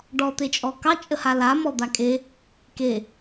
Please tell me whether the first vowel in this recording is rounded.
yes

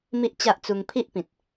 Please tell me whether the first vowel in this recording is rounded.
no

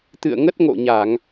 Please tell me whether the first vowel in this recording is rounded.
no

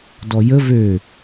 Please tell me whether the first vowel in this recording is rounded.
yes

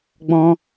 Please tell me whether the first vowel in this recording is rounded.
yes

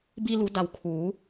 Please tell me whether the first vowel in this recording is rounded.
no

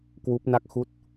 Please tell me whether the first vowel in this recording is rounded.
yes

